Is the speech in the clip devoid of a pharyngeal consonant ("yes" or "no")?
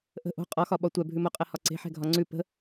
no